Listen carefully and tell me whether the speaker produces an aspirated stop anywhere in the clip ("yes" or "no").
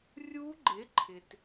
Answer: yes